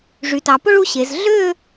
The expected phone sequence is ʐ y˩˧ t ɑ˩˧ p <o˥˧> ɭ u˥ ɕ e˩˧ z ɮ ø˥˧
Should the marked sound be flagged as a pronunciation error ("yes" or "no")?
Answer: yes